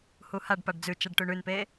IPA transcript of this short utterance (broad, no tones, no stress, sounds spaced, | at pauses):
h u h a ɖ p a ɖ d͡z ʉ t͡ʃ a ɖ ʈ ʉ ɳ ʉ n p e